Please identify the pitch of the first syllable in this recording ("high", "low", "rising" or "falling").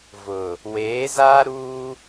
low